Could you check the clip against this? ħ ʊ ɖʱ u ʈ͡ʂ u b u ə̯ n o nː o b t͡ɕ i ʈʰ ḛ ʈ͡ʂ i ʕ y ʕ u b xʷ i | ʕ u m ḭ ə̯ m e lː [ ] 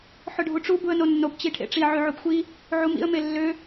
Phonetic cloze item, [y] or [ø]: ø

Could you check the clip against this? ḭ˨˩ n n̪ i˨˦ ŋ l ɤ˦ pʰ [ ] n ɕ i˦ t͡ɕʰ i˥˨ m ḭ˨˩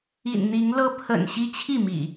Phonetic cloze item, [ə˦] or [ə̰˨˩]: ə̰˨˩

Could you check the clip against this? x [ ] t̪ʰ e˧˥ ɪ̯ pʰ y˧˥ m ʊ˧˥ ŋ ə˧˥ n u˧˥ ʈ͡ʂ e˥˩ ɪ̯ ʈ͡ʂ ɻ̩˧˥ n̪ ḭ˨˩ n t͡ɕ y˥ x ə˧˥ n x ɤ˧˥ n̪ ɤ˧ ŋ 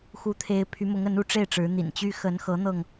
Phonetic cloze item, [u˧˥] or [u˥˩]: u˧˥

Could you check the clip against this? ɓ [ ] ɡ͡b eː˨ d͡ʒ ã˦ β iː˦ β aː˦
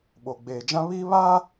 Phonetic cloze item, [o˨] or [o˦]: o˨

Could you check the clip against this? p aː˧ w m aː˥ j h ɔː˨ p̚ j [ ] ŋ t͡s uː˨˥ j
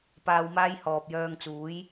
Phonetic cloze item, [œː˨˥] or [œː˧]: œː˧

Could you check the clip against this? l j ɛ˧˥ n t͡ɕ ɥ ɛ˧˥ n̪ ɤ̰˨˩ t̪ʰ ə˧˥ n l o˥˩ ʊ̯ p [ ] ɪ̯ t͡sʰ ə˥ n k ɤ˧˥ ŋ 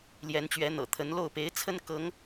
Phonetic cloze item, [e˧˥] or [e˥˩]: e˧˥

